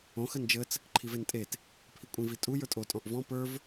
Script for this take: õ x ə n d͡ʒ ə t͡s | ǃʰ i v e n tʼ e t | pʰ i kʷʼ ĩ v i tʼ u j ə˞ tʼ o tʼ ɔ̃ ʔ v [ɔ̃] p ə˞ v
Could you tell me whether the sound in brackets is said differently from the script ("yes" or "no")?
no